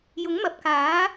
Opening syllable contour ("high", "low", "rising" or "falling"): rising